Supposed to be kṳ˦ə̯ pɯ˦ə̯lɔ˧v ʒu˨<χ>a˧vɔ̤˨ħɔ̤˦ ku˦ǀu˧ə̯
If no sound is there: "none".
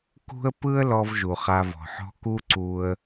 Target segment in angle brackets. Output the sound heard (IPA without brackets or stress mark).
χ